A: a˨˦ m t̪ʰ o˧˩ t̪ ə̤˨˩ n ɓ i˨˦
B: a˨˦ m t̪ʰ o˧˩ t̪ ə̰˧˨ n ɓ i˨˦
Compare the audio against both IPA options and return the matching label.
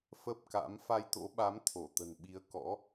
A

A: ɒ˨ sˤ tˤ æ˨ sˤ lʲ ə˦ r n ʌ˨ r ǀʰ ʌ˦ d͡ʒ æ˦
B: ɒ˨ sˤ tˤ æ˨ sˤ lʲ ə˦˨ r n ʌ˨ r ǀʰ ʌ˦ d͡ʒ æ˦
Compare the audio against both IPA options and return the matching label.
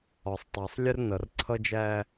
A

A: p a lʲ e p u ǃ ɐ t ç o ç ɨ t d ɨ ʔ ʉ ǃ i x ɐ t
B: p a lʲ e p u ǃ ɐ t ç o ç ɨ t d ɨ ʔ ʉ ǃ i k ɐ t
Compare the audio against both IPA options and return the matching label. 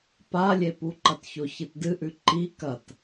B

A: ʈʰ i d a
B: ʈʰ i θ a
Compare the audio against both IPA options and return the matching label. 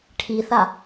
B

